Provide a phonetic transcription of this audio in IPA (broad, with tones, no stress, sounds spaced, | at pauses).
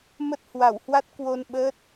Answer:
m ə˦˥ t̚ h w a˧˩ w h w a˦˥ t̚ k w o˧ n ɓ əː˦˥ t̚